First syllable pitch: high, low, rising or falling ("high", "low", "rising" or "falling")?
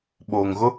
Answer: low